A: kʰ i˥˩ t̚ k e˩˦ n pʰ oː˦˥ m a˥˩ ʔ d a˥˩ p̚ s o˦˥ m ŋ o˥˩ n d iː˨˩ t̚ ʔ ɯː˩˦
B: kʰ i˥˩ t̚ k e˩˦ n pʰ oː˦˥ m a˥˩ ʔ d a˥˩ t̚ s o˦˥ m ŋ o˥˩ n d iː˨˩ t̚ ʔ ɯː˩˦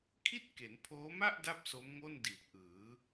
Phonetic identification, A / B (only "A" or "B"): A